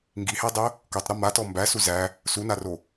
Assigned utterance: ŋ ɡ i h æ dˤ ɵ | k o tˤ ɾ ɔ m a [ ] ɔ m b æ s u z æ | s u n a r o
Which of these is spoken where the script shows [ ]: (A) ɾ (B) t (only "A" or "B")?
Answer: B